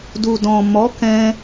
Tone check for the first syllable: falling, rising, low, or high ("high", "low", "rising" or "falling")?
low